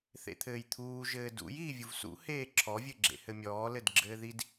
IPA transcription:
θḛt̪ʰɘːjt̪ʰuː ʒɘːdṵj iːvʲuvsṵ heːǁʰɔ vʲɘɡ͡ǁḛhɘmʲɔː lɘdɡ͡ǁɘːðid

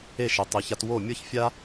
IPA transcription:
e˥˩ʃe˩tˤi˩ça˧t wo˥˩mʲɤ˥çfʲa˥

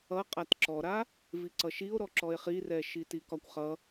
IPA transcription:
ʌ qʼatǁɔɾa | viǀʌʃio̯ ɾɔǁɔe̯χirɛ ʃitikɒkʷχʌ

